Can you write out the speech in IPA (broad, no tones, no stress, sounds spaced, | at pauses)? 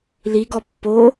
l i ɡ ɔ pː o